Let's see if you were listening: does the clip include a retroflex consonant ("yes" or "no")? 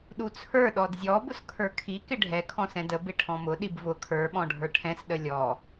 yes